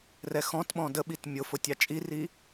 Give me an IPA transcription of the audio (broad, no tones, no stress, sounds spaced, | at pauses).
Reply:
r ɛ x ɔ̃ t ɓ ɔ̃ d ə ɓ i t mʲ ʊ f ʊ tʲ ɑ t͡ʃʼ i r i